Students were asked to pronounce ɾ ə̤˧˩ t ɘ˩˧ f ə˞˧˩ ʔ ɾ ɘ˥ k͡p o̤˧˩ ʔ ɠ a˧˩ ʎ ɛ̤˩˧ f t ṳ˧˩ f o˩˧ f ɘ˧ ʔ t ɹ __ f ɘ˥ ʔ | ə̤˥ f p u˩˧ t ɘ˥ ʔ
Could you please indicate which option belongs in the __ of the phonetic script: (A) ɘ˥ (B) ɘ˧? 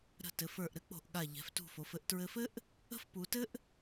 B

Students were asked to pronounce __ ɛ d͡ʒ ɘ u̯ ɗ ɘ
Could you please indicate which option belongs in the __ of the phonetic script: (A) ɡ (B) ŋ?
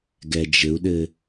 A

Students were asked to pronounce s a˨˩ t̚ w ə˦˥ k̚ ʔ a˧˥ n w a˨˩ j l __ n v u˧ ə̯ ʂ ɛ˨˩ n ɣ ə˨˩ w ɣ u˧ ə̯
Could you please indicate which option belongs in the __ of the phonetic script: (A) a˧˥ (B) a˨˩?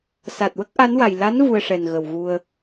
A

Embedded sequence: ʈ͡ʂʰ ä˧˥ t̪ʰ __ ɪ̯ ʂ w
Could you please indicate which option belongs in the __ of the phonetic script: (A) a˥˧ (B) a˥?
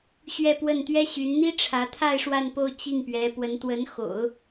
A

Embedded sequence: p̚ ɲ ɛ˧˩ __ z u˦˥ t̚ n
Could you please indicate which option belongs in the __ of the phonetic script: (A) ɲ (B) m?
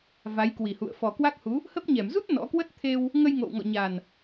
B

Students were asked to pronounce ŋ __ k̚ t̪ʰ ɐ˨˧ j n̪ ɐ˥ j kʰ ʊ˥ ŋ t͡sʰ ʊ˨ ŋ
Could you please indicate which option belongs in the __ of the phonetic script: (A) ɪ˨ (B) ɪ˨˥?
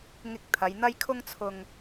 A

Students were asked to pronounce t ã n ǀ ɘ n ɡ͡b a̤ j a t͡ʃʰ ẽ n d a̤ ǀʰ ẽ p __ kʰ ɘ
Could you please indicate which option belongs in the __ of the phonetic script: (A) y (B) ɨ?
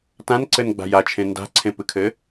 B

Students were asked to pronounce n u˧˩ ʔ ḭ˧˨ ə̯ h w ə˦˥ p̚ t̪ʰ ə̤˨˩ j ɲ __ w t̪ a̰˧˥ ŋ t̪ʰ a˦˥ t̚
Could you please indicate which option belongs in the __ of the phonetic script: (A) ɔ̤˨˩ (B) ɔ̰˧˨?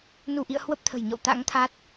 B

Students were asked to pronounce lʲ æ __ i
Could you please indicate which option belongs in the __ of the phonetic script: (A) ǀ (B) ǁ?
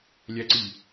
A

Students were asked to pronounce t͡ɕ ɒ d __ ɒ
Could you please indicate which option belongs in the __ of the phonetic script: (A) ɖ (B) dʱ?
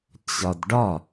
A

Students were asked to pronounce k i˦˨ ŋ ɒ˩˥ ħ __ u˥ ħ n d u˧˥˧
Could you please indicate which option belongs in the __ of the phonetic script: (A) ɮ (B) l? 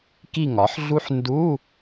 A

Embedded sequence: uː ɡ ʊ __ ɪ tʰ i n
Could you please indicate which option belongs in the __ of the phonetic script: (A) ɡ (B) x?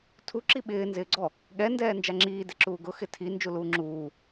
B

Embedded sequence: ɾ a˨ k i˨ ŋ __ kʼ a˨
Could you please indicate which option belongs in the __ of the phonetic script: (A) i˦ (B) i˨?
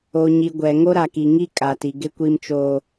A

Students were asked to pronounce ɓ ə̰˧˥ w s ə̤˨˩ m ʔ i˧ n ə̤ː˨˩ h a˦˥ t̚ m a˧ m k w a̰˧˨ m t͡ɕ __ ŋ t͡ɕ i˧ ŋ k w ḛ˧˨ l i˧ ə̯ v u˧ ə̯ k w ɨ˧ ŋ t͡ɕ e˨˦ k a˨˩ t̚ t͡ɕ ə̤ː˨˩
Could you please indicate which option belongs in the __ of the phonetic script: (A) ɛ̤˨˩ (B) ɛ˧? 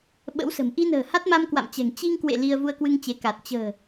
A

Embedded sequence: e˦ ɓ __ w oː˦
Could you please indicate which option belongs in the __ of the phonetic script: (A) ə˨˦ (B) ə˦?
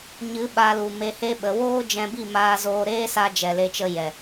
A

